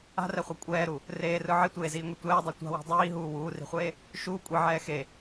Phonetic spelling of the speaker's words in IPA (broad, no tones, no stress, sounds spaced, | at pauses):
a̤ r ɛ χʷ ɛ kʷʼ ɛː ɾ u | r eː r ɯ ʕ i tʷ eː z iː ŋʷ i tʷ ɛː dˤ ɛ tʷ a̤ w i̤ dˤ iː ɦ uː w uː r i̤ χʷ eː | ʃ uː kʷʼ i ʕ ɛː x e